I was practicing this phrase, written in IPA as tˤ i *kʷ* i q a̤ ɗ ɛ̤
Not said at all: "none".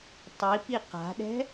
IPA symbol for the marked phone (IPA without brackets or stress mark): p